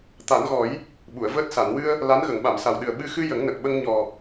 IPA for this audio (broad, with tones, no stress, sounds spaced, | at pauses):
t̪ a˨˩˦ n ɣ ɔ˨˩˦ j | ɓ u˨˩˨ ə̯ v əː˦˥ t̚ s a˨˩˨ n w ɨ˧ ə̯ | l a˧˥ n ɣ ə˨˩˨ ŋ ɓ a˨˩˨ m s a˨˩ w ɗ ɨ˨˩ ə̯ ɓ ɨ˧ x ɨ˧ j ə˨˩˦ ŋ n ə˨˩ k̚ ɓ ə˧ ŋ ɲ ɔ˨˩